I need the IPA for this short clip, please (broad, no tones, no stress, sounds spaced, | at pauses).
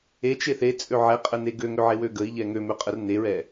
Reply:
e t͡ʃ e θ e t͡sʼ ø ʕ ɛ qʼ ə n e ɡ ø ŋ ø ʕ e w ø ɡ ə i̯ ʎ ɛ ŋ ø m ø qʼ ə r n e ɹ ɛ